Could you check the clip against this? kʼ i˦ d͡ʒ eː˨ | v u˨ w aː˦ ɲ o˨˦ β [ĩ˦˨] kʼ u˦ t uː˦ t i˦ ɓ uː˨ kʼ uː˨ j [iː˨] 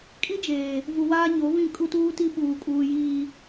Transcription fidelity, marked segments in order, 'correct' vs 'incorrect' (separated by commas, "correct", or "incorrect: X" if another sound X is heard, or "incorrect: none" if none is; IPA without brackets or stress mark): correct, correct